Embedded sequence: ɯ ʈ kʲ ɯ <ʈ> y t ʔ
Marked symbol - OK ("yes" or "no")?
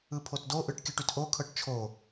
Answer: yes